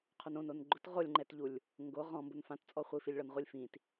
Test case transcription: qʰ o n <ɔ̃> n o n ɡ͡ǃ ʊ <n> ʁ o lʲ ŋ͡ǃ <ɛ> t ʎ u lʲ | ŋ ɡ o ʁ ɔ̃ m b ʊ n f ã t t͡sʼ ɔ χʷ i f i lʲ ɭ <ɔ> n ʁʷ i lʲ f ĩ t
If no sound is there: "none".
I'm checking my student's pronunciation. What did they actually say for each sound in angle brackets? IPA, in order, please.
õ, t, ɛ, ɔ

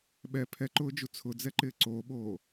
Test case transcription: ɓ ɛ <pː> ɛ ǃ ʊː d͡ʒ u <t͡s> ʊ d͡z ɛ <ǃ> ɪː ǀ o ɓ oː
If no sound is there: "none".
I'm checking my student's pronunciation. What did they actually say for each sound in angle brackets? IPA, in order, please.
pʰ, t͡sʰ, ǃ

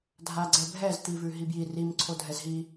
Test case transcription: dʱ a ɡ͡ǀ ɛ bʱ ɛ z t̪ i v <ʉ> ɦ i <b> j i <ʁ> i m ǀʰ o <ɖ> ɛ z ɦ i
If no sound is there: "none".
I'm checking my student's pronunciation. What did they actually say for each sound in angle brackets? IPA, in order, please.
ʉ, b, r, dʱ

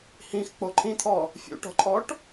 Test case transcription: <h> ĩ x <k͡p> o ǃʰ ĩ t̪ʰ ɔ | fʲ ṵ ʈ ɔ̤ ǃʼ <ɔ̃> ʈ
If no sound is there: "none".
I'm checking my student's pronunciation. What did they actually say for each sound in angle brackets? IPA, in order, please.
h, k͡p, ɔ

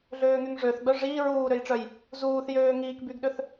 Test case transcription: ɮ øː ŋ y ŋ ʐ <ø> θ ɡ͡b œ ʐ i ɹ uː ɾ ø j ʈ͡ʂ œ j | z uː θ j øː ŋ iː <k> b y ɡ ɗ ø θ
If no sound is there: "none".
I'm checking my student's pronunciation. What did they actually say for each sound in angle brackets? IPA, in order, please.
ø, k

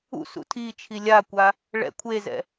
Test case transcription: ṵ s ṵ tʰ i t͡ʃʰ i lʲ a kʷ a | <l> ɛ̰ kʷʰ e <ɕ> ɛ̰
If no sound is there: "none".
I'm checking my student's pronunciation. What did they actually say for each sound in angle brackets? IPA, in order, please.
ɭ, z

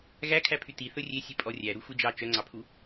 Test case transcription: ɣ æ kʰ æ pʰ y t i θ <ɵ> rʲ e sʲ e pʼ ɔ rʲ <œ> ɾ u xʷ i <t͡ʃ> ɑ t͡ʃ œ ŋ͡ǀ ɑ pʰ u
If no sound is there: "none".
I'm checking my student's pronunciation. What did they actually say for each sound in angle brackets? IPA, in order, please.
ɵ, æ, d͡ʒ

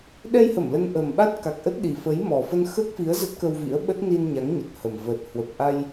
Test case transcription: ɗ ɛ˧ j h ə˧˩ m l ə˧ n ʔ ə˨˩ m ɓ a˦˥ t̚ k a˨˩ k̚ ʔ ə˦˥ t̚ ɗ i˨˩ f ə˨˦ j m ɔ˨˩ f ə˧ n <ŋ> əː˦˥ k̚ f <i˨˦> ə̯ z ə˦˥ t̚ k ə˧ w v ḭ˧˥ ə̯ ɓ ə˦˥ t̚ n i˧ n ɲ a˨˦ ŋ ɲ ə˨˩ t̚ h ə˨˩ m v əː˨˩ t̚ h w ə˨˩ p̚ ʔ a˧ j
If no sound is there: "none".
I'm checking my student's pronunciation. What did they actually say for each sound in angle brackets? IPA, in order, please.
x, i˨˦

